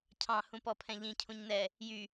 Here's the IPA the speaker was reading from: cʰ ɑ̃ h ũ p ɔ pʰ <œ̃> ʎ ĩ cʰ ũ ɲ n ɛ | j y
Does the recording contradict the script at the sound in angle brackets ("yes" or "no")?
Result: yes